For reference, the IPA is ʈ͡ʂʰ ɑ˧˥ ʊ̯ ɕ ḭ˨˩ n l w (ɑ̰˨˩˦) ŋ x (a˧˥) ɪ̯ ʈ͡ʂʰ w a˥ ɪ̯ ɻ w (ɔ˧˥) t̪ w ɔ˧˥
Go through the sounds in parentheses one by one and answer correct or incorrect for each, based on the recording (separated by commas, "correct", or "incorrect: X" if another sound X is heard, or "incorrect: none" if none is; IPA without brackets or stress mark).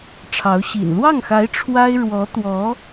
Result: incorrect: ɑ˥˩, correct, correct